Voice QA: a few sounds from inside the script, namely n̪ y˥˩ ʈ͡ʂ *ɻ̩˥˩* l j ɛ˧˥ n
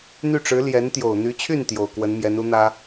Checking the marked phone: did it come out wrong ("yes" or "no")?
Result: yes